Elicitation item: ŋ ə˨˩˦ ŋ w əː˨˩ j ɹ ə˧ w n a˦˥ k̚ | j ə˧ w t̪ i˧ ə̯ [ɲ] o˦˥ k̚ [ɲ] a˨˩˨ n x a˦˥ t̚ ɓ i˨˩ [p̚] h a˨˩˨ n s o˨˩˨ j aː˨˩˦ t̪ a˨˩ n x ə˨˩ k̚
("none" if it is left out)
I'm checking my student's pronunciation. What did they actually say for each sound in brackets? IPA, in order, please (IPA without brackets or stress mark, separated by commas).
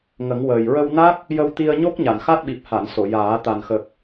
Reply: ɲ, ɲ, p̚